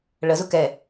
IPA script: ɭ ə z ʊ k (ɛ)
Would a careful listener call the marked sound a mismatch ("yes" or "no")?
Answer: no